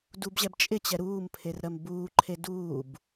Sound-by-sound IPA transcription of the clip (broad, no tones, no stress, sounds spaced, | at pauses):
d u b ʑ ɛ b t͡ʃʼ ɪ t͡ɕ ɛ ɾ uː m pʰ e r ɾ ɜ m b uː ǃʰ e d uː b